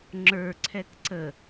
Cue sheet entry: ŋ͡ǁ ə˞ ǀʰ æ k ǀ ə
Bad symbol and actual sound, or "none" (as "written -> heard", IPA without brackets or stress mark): æ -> ɛ